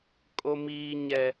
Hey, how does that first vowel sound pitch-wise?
low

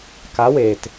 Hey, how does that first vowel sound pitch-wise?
rising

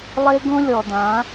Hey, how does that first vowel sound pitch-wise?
high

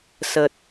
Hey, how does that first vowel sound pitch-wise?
low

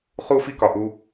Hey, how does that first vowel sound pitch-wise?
high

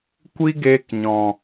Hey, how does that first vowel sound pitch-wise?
high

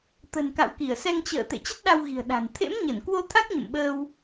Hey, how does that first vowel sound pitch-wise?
low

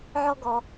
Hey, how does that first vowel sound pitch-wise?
high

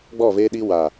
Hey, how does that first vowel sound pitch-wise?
falling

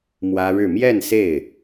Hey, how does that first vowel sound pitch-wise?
high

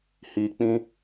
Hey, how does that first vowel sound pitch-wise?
low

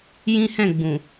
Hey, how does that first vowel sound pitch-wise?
high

